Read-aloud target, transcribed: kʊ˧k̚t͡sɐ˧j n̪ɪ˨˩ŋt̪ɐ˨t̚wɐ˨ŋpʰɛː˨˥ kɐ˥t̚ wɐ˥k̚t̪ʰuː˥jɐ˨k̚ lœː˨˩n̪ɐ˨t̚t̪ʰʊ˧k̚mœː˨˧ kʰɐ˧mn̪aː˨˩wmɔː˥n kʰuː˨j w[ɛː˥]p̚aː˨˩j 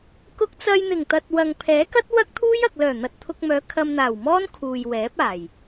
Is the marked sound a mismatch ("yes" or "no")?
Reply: yes